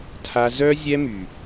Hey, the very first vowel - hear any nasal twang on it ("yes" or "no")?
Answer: no